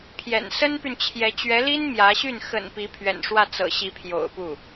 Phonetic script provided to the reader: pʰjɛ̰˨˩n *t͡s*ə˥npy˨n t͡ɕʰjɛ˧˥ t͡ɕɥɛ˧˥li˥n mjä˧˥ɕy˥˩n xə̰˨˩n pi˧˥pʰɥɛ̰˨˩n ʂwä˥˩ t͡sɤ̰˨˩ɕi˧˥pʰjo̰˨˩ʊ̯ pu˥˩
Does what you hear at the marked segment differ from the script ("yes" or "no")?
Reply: yes